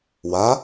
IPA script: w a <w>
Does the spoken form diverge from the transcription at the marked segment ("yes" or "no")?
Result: yes